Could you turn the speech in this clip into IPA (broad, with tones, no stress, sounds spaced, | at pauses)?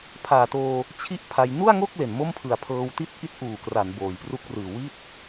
pʰ aː˨˩ t oː˧ | t͡ɕʰ i˥˩ ʔ pʰ a˧ j n u˥˩ a̯ ŋ o˥˩ k̚ l e˨˩ n m o˥˩ m pʰ ɯ˨˩ a̯ pʰ ɤː˧ w t i˥˩ t̚ ʔ i˦˥ t̚ ʔ uː˨˩ k r a˩˦ n b oː˨˩ j p r u˦˥ k̚ r ɯː˨˩ w i˥˩ t̚